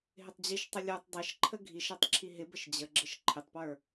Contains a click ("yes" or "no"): yes